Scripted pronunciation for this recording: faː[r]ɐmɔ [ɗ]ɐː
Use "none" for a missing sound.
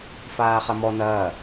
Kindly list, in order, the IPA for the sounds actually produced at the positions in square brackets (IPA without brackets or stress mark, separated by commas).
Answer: χ, n